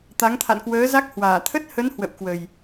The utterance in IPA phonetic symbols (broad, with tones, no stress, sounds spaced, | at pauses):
t̪ a˨˦ ŋ t̪ʰ a̰˧˨ n k w əː˨˦ z a˦˥ k̚ h w aː˧˩ t̪ʰ ə˦˥ t̚ h ə˨˦ n h w ə̰˧˨ w k w ə˨˩ j